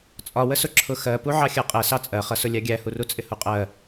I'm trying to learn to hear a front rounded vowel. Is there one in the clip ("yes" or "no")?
no